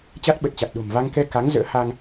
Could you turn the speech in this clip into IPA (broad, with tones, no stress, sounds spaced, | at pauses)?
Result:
t͡ɕ a˦˥ t̚ ɓ ə˨˩ t̚ t͡ɕ a˨˩ t̚ ɗ o̤˨˩ m v a˧ ŋ k ɛ˧ k a˨˦ ŋ z ə̰ː˧˥ h a˧ ŋ